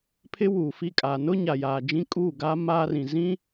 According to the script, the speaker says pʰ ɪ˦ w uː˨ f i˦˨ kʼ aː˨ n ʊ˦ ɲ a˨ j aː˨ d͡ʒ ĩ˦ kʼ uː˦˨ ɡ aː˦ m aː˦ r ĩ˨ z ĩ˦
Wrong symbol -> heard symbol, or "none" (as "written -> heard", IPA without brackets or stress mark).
none